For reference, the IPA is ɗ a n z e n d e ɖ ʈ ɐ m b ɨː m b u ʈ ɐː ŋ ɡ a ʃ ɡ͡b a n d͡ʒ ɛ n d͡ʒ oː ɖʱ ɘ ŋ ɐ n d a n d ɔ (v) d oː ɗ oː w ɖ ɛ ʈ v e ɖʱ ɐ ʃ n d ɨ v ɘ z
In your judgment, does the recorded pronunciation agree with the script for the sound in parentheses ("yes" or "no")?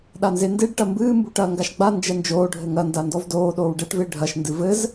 yes